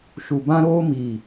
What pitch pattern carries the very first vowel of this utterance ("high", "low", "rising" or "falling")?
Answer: low